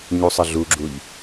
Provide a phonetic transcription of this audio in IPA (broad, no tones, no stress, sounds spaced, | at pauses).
ɲ u sˤ ə ɮ u ɡ͡ǁ u ʎ